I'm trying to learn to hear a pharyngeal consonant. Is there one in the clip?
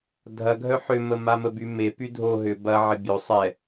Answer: yes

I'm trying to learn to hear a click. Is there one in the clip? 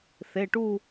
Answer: no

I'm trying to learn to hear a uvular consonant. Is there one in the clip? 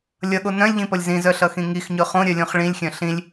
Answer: yes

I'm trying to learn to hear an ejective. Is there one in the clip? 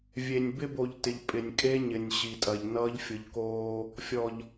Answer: yes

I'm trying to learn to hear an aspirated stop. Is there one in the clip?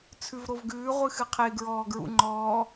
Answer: yes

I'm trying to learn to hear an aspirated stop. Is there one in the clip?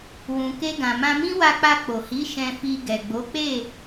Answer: no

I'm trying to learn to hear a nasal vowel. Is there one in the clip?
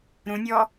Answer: yes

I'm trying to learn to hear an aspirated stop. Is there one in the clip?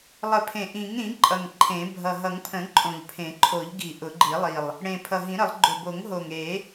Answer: yes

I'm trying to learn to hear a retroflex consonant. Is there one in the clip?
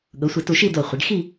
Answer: yes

